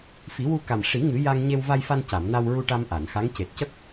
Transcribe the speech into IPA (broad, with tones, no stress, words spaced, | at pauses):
fi˨˩˦wu˧ka˨˩m ʂi˨˩˦ ŋɨ˨˩˦ ja˧ŋ ɲe˧wva˧jfa˧nca˨˩˨m na˧wɹu˧ʈa˧m ʔa˨˩˨nxa˧˥ŋ ce˨˩t̚cə˦˥k̚